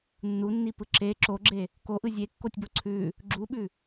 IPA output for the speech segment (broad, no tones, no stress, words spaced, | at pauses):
nːunːipɯ ǁe ǁoɡ͡ǁe | koʔɯ zʲekːotʲbo ǀʰʉ | ɡ͡ǁuɓʉ